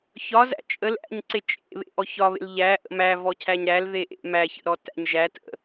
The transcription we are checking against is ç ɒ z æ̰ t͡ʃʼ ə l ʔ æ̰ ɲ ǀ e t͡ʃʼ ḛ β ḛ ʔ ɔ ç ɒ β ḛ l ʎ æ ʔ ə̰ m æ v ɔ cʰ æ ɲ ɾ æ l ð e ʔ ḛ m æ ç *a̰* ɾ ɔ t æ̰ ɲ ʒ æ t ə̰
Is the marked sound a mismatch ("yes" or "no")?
yes